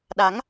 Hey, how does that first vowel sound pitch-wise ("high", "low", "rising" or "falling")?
rising